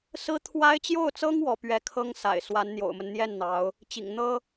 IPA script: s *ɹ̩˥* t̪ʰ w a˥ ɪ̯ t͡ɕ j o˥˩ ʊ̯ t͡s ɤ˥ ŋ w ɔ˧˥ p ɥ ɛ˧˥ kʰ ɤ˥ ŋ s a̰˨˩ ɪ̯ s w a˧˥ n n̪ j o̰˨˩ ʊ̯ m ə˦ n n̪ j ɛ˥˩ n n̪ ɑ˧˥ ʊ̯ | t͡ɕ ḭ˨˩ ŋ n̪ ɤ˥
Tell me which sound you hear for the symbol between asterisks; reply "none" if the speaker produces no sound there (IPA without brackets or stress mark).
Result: ɹ̩˥